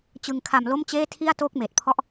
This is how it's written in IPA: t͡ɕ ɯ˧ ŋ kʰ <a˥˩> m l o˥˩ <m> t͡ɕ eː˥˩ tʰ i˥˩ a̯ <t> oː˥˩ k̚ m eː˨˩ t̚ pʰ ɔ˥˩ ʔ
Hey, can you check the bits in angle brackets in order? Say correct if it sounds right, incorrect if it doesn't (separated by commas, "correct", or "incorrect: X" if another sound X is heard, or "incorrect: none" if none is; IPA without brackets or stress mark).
incorrect: a˧, correct, correct